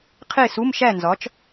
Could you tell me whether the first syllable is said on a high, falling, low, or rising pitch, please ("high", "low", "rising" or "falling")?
falling